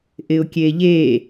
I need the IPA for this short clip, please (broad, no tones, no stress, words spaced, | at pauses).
ʔɪʊ̯kʲeʎe